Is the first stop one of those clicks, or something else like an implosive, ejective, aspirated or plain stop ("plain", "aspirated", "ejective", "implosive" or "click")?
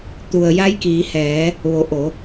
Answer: plain